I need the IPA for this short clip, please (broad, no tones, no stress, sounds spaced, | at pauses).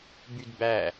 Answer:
b y d b æ